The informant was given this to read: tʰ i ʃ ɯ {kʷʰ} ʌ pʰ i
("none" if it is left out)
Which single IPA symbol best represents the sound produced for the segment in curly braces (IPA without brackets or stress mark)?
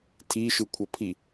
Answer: kʷʰ